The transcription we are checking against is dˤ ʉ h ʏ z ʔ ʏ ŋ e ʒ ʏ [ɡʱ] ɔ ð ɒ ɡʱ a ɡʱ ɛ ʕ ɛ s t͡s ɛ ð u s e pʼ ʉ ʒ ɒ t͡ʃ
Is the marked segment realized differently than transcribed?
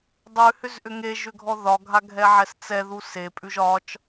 no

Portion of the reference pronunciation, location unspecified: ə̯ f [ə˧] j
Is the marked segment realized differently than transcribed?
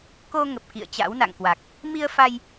yes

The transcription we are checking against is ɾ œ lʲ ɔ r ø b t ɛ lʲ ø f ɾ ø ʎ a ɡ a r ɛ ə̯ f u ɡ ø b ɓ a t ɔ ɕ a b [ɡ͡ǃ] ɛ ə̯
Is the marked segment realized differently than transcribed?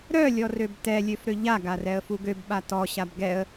yes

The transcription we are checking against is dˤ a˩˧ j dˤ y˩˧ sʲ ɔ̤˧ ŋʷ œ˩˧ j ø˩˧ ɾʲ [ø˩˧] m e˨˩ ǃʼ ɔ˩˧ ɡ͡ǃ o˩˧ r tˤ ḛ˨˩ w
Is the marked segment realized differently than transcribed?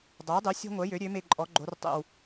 no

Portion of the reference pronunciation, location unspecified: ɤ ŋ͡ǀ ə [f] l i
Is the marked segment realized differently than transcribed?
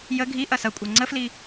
no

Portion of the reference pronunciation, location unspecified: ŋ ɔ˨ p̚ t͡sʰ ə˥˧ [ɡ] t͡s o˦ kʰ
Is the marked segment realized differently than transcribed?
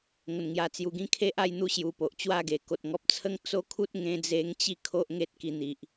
yes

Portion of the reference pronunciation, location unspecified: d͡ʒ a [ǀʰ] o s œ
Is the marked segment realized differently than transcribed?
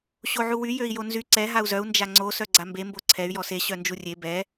yes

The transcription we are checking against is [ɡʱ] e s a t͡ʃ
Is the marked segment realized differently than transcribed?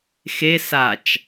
yes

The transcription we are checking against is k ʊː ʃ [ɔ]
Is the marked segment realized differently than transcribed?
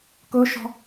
yes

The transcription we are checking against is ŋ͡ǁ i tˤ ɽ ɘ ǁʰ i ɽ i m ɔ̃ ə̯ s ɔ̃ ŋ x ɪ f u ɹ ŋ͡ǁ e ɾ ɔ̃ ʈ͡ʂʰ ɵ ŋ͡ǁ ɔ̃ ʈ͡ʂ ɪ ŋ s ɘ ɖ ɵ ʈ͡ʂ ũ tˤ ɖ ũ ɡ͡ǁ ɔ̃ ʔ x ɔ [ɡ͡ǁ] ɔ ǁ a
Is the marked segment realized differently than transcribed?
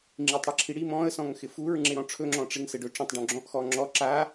yes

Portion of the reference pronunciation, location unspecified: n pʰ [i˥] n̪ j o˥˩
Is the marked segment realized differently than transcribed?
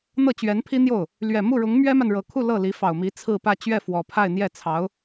no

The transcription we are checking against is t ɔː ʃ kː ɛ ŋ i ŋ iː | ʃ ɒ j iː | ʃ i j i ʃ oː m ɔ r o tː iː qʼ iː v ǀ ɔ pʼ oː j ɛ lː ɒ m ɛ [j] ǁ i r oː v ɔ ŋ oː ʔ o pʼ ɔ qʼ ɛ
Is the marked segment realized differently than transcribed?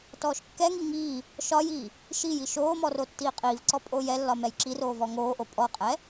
no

